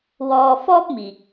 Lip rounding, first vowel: rounded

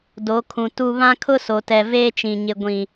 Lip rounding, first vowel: rounded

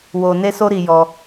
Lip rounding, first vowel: rounded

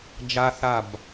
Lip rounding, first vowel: unrounded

